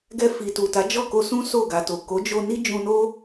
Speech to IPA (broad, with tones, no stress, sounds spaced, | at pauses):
ɡ ɛ˧ f i˨ t u˨ t a˨˦ d͡ʒ ɔ˦˨ k o˧ s ũ˦ s o˦˨ ɡ a˨ t o˨ k o˨˦ d͡ʒ o˧ n i˦ d͡ʒ ũ˧ n o˦